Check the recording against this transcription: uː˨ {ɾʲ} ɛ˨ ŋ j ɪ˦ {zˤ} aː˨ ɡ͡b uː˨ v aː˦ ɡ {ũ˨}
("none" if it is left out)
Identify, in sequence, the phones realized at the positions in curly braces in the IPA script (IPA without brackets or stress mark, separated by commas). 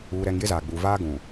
ɾ, z, ũ˨